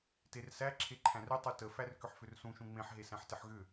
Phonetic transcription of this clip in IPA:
t e r s æ ǁʰ e ǃʰ æ̃ r ʏ tˤ u t ə f æ r k ʏ ħ f ʏ r s ũ ʃ ũ ŋ͡m ẽ ħ ɦ e s æ̃ ħ t ɪ ħ ɣ ʏ

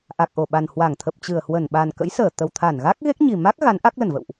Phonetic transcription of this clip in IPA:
ʔ a˨˩ k̚ ʔ o˧˩ ɓ a˨˩ n h w a˧˩ ŋ t̪ʰ ə˨˩ p̚ t͡ɕ ɨ˧˩ ə̯ h w ə˧˩ n ɓ a˨˩ n k ə̰˧˥ j s əː˧˩ t̪ ə˨˩ w t̪ʰ a˧˩ n ɣ a˦˥ k̚ ɣ e˦˥ k̚ ɲ i˨˩ m a˦˥ k̚ ɣ a˨˦ n ʔ a˦˥ k̚ l ə˧˩ n v ə̰˧˨ w ʔ

